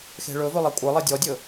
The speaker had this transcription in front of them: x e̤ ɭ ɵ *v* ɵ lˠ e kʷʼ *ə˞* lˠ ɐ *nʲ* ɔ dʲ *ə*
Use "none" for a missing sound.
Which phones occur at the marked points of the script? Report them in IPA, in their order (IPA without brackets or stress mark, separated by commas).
v, ə˞, dʲ, ɵ